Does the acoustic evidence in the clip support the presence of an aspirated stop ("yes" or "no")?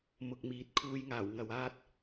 yes